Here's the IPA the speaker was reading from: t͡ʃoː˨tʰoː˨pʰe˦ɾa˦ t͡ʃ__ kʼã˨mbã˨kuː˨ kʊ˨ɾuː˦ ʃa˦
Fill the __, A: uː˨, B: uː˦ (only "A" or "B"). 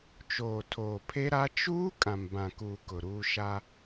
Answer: B